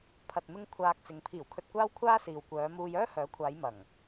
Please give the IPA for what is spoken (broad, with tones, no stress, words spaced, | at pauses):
pʰɐ˨t̚mɪ˧ŋ kʷʰaː˧k̚t͡sɪ˨˧ŋ pʰiː˨˩wkʰɵ˨t̚kʷaː˧w kʷʰaː˥siː˨wkʷœː˨˧muː˧j œː˥hœː˨˥kʷʰaː˨˧j mɐ˨˩ŋ